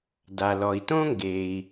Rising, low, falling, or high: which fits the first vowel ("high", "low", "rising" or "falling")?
low